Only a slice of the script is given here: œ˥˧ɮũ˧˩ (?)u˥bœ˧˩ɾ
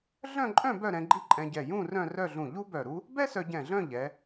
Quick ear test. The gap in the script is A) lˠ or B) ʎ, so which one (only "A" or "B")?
B